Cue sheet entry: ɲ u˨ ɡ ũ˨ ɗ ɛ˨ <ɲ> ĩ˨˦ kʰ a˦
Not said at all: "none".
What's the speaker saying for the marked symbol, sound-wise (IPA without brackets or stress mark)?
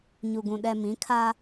m